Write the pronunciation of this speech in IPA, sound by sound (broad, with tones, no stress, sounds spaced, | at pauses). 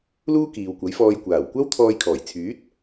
l uː˥ k iː˨ w kʷ ɐ˨˥ j f ɔː˧ j kʷ aː˨˩ w kʷ ɐ˥ w t̪ʰ ɔː˧ j kʰ ɔː˨˩ j t͡sʰ yː˨˥ t̚